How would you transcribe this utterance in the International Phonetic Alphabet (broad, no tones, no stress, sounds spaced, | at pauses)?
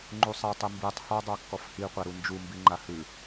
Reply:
ŋ͡ǃ u sˤ a tˤ ɨ m b i tˤ h ɔ dˤ a kː ɔ f h i qʷ a ɾ u n d͡ʒ u m b i ŋ͡ǃ a h ɨ